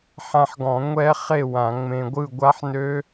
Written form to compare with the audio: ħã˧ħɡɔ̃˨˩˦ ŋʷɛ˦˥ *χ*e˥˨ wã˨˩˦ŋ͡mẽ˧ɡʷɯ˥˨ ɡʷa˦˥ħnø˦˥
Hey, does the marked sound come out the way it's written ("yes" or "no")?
yes